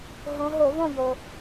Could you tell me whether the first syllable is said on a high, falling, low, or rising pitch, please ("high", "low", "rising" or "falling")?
rising